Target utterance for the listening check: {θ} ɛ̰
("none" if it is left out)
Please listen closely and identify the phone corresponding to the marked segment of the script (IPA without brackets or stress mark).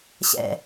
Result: ɕ